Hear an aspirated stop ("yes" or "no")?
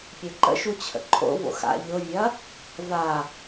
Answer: yes